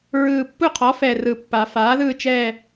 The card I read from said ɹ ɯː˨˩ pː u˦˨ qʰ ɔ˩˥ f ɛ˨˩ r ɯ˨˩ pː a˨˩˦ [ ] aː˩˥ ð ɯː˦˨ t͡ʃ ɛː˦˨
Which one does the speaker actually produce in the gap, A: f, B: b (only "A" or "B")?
A